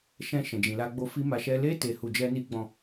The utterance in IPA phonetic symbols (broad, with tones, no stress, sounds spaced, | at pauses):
ʃ ɛ̃˧ ʃ ɛ̃˨ d͡ʒ ĩ˨ l a˧ ɡ͡b o˧ f i˦ m a˧ ʃ ɛ˦ l e˦ t e˧ h u˧ d͡ʒ ɛ˦ n i˦ ɡ͡b ɔ̃˦˨